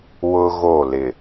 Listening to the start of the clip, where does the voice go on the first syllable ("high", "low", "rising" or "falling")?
high